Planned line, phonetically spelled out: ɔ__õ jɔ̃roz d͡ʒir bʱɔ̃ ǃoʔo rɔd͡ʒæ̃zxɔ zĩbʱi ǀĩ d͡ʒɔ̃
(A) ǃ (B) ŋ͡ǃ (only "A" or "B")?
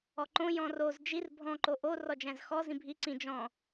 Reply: A